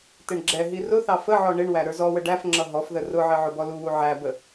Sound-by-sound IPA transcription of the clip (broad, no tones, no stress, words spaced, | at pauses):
tɪɳɡ͡ǁɛɦi rʊθɑ fəʕɔ ɳɪɳwæ ɾə˞zɔwə ɖæfŋ͡ǁʌ ɦɔfðə rʊʕɪ ʕʊbɔluwu ʕæbə